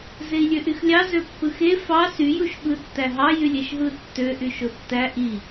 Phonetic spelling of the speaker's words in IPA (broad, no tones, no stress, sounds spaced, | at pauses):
z e i̯ lʲ ø ʔ y x lʲ ɑ z ø pː ɯ x e f ɑ s y j u ʃ ɓ ɯ tː æ ɦ ɑ j y lʲ e ʃ ɦ ɯ tː ø ʔ y ʃ o tː æ ʔ i